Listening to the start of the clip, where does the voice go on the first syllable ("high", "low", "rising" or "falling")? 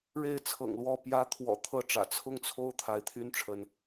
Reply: falling